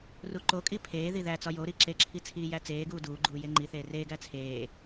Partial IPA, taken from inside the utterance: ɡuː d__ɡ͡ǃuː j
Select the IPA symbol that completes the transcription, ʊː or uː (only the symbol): uː